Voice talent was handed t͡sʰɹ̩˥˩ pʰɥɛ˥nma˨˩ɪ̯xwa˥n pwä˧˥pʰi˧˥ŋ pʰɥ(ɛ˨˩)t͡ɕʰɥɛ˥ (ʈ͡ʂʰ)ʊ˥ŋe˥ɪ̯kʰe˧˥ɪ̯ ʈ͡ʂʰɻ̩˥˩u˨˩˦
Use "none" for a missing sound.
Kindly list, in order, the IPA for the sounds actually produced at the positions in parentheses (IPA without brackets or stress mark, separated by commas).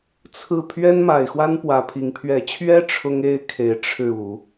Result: ɛ˨˩, ʈ͡ʂʰ